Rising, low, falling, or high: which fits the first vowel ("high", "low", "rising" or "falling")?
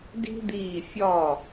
high